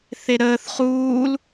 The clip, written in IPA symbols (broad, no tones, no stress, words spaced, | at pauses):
θeɾəːθ χuːl